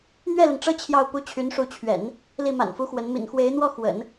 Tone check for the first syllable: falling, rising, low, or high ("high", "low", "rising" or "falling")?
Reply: falling